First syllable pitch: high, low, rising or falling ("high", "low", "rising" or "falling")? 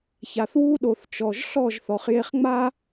low